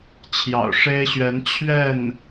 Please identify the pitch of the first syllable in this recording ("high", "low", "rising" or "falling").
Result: low